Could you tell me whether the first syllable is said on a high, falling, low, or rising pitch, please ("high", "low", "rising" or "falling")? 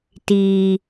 low